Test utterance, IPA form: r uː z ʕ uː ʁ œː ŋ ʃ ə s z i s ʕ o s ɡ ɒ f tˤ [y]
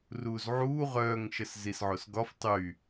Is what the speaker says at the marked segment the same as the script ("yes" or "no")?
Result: yes